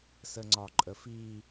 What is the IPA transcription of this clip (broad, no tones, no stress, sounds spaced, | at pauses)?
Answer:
s ə ŋ͡ǀ ɒ ǃʼ ə f i